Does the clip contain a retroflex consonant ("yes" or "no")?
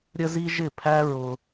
no